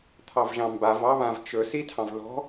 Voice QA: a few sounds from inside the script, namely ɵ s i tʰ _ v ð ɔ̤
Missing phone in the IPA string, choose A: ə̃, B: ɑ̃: B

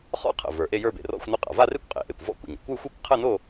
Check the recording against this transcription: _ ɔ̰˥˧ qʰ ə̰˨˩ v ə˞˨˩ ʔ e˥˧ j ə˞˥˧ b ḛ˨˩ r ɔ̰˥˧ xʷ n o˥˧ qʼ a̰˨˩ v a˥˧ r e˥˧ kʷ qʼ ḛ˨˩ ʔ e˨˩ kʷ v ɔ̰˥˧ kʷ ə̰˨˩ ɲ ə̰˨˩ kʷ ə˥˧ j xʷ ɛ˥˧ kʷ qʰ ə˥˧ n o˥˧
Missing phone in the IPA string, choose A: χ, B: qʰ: A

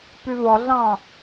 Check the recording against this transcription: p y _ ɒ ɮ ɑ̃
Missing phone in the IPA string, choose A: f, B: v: B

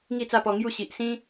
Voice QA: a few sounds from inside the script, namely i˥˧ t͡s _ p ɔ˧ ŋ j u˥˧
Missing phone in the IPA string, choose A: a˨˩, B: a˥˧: B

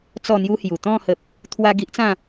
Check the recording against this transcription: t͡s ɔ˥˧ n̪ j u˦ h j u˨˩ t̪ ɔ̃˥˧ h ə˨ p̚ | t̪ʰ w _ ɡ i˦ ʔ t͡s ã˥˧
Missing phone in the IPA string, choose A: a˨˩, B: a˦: B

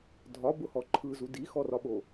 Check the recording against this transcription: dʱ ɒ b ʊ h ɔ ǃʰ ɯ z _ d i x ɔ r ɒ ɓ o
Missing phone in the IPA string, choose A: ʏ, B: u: B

